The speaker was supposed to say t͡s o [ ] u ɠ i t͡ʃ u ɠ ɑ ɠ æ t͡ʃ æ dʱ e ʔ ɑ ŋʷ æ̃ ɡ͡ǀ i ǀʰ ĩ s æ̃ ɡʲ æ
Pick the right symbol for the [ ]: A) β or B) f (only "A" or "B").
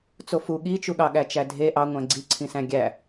B